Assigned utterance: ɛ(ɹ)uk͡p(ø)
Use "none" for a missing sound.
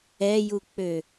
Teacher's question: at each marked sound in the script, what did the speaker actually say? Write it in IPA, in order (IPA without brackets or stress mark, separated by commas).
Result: j, ø